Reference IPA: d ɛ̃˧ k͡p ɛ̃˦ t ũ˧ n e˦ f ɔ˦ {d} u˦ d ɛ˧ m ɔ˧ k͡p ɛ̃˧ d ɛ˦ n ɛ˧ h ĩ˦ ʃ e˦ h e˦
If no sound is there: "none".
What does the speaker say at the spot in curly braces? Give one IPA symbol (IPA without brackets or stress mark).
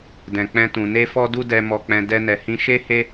d